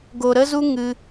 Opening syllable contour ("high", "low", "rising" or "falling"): low